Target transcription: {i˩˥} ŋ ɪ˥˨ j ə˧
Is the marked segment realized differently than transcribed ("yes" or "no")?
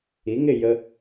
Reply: no